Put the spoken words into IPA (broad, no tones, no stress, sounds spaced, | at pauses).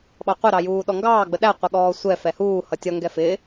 ɓ ɑ qʷ ɪ ɾ ɑ j uː ɗ ɔ ŋ ɡ ɑː ɡ͡b ə ɗ æ qʷ ɛ ɠ ɔː sʷ ɛ f ɛ h uː h ʌ tʲ ʌ ŋ ɡ ɛ f ɪː